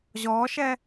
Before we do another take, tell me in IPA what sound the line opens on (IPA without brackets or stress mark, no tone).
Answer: ʑ